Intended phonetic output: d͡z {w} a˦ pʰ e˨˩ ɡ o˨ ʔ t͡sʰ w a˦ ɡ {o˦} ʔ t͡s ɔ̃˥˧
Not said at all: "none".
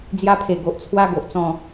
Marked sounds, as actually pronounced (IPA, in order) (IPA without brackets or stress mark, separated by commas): j, o˨